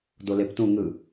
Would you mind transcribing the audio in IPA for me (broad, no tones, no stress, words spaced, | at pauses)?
doleptũ ŋɯ